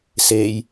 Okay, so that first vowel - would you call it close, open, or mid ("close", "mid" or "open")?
mid